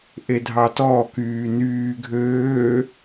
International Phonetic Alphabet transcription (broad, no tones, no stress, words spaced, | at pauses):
ʔedʱɑtɔ kyːnyː ɡʱøː